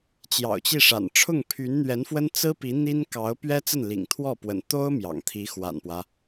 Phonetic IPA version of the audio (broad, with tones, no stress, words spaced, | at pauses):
t͡ɕjɑ̰˨˩ʊ̯t͡ɕi˥˩ʂa̰˨˩n ʈ͡ʂʰʊ˥˩ŋpʰy˧˥nn̪ɥɛ˧˥nfwə˥n t͡sɹ̩˥ pi˧˥n̪i˥nkɑ˧˥ʊ̯ pɥɛ˥t͡sə˥˩n lḭ˨˩ŋt̪ʰwɔ˥˩pwə̰˨˩n t̪o˥ʊ̯ mjɑ̰˨˩ŋt̪ʰi˧˥xwa̰˨˩npwä˦